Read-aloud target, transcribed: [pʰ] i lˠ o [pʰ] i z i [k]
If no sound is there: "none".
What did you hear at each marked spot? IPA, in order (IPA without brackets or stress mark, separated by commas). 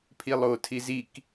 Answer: pʰ, tʰ, k